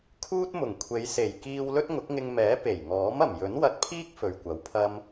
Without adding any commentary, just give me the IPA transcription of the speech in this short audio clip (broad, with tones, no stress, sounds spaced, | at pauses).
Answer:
kʰ uː˥ t̚ m ʊ˨˩ ŋ kʷʰ e˨˧ j s e˨˩ j k iː˧ w l ɵ˥ t̚ ŋ ʊ˨˥ k̚ ŋ ɪ˧ ŋ m ɛː˨˥ p e˨˩ j ŋ ɔː˨˥ m ɐ˨˩ m j ɵ˨˥ n w ɐ˧ t̚ pʰ iː˥ k̚ f ɵ˨ ɥ kʷ ɐ˨˥ w pʰ ɐ˥ m